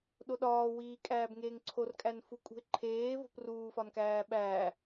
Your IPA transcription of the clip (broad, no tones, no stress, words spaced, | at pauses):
ɗoɗɒːwiː kʼæːbŋeːŋǀʰorkʼæn fukʼṳɪ̯ǃʰeː vo̤pruːfɒnkæː ɓæː